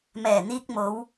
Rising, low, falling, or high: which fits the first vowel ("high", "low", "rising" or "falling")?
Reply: low